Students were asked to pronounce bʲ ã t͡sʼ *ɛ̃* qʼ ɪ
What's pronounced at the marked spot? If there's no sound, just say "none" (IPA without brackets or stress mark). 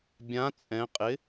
ɛ̃